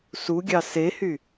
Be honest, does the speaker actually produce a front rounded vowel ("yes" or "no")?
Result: yes